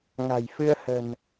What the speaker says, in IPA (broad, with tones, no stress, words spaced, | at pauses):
ŋa̤˨˩j fɨ˧ə̯ hə̤˨˩n